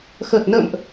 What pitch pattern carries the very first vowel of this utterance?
low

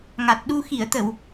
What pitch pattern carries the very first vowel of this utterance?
low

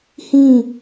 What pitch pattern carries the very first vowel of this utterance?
falling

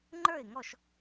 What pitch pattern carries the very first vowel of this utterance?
falling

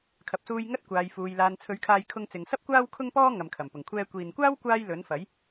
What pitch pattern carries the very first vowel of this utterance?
low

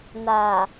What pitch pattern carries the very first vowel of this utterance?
low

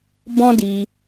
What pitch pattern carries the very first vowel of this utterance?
high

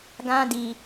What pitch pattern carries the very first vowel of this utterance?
high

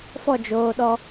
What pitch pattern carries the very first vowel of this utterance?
falling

